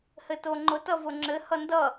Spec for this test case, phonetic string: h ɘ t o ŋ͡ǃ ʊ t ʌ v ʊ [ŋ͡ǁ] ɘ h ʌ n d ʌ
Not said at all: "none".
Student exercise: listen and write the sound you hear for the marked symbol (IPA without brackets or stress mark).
ŋ͡ǁ